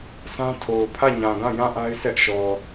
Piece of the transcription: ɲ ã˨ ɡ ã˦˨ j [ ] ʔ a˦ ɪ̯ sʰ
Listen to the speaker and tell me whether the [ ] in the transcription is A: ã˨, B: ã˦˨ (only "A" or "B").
B